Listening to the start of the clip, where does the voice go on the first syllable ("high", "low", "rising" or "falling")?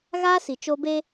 high